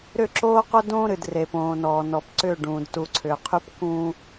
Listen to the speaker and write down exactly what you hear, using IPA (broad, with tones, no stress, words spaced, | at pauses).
ɾʏ˦˨ǁoː˦qo˦ dõː˦ɾɨ˨dre˨põː˨ nɔː˨nɔ˨p ǀʏː˦˨ɖũː˨d tu˨ǀʰʏː˨qʰy˦p kũː˦